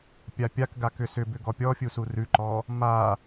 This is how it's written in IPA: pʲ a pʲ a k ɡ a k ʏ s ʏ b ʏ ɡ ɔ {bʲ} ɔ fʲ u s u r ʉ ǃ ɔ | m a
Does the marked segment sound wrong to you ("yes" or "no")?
yes